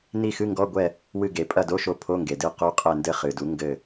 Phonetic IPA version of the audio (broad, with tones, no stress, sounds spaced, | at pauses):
n i˦˨ x ɨ˧˥˧ ŋ ɡ ɔ˧˥˧ ɡʷ ɛ˦˨ | w ɨ˦˨ ɡ e˩˥ pʼ ɐ˦˨ d o˧˥˧ ʃ o˦˨ pʰ o˧˥˧ ŋ ɡ e˩ d ɨ˦˨ q u˧˥˧ qʼ ɛ˦˨ n d ɘ˦˨ χ ɨ˩ d u˩˥ ŋ ɡ ɘ˦˨